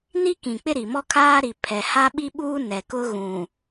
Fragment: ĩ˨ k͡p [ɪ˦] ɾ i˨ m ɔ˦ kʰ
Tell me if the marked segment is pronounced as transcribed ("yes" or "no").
yes